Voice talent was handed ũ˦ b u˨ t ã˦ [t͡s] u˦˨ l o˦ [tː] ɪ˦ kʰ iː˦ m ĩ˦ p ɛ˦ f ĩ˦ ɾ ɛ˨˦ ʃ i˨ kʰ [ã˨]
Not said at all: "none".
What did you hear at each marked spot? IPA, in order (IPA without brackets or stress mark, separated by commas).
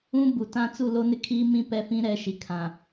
t͡s, n, ã˨